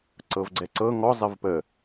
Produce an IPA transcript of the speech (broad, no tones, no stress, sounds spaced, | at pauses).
ǀ ɤ v ɡ͡ǀ ɛ ǀ ɤ ŋ ɔ zˤ ɘ v p ə